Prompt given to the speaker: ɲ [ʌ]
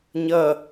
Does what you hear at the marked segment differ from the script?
no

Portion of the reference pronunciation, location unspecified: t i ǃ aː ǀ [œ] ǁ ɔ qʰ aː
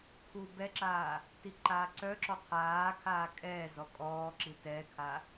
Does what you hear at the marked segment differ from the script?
no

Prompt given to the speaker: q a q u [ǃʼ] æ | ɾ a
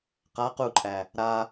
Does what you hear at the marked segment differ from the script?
no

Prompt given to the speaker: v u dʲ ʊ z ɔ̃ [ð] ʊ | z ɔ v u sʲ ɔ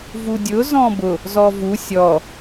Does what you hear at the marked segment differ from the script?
yes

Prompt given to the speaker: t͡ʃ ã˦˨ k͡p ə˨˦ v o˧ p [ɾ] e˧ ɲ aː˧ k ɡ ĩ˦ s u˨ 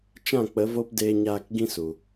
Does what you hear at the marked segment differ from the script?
yes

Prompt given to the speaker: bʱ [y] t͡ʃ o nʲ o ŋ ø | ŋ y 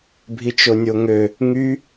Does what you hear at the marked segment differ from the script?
yes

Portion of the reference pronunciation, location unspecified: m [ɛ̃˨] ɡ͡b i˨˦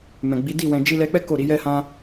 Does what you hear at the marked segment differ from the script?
no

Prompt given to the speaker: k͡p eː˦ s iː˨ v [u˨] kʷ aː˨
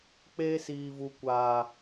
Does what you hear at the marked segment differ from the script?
no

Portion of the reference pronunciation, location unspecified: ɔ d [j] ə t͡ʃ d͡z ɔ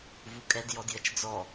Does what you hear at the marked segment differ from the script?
no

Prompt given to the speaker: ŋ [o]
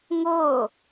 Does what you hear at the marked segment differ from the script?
no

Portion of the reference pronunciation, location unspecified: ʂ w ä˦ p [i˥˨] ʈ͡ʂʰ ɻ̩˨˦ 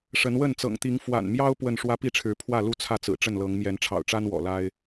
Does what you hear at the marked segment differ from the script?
no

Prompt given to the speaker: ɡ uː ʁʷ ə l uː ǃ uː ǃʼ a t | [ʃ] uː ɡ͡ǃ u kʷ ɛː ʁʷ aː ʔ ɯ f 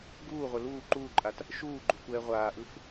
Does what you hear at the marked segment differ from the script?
no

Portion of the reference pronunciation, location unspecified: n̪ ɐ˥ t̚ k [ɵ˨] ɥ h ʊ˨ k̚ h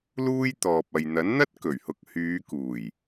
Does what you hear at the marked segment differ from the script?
yes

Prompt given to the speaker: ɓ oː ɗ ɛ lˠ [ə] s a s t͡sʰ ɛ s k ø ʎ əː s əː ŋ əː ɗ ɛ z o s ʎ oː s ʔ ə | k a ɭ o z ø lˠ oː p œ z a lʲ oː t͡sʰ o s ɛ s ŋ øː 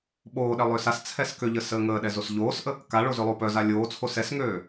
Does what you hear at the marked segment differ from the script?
yes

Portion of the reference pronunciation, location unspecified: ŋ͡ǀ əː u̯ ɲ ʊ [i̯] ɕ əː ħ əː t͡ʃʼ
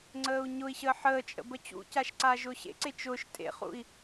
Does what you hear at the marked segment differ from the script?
no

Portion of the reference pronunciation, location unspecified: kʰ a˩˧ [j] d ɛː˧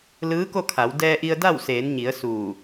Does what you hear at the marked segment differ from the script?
yes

